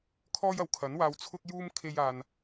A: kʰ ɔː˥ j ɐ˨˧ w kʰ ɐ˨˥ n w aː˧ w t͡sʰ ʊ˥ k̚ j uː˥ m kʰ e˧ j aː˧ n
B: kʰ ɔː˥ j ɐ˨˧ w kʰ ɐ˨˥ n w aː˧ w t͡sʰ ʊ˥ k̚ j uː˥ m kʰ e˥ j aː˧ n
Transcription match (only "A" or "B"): B